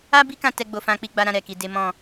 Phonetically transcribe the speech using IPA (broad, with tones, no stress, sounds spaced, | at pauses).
a˦ b i˦ k ã˧ t ɛ˦ ɡ͡b o˧ f ã˦ k͡p i˦ ɡ͡b a˦ ɾ ã˦ ɾ ɛ˦˨ k i˧ d e˦ m ɔ̃˦˨